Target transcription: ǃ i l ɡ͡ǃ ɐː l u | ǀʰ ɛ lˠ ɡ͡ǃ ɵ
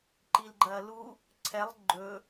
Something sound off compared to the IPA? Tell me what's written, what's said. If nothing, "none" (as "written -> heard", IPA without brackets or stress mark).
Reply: none